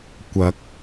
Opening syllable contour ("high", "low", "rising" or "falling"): rising